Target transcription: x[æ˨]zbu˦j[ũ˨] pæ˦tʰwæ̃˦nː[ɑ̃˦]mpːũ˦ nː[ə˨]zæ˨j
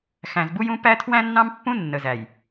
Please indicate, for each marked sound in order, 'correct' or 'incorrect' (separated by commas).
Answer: incorrect, incorrect, correct, correct